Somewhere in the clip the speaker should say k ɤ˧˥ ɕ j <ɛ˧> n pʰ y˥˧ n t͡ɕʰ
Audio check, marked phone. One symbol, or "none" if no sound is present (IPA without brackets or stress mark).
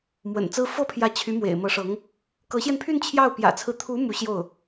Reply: ɛ˧